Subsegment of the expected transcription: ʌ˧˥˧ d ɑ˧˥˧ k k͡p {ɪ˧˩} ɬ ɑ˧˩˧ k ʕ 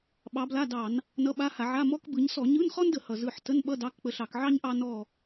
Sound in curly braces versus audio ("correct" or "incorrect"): incorrect